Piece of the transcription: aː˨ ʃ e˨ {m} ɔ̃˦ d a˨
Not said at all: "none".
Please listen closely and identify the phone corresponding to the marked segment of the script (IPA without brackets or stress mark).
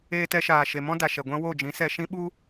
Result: m